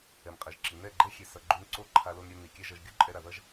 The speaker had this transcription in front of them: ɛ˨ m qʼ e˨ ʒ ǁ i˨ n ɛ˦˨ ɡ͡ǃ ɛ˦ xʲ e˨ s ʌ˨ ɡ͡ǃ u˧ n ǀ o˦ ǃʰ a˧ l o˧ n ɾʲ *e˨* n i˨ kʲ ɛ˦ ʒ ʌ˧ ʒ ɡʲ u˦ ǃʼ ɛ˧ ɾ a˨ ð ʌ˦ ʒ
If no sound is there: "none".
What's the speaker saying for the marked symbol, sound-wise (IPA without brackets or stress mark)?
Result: e˧